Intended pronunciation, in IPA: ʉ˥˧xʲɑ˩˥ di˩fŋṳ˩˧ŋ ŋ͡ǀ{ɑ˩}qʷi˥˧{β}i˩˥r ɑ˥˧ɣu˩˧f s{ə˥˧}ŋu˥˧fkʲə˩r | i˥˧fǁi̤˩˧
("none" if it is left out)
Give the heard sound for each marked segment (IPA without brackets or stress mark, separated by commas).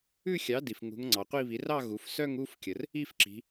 ɑ˩, β, œ˥˧